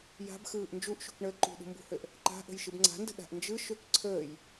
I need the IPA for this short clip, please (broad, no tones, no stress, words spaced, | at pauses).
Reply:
ja̤bxɯːʔ nd͡ʒuʔʃṳkɳəː ǃṳɗṳmbṳhøʔ | ǃa̤ʔə̤j ʃɯbŋ͡ǀa̤ndə̤ ɗa̤ʔnd͡ʒɯ ʃøkǀʰəːj